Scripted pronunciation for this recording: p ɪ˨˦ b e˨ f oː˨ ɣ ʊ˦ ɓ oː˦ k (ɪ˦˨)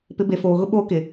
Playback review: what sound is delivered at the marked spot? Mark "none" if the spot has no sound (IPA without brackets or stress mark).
ɪ˨